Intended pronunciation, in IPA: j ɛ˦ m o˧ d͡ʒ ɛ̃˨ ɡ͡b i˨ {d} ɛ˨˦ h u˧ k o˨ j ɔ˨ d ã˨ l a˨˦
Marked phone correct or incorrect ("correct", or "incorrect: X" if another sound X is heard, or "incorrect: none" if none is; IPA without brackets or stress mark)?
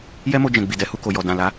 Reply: correct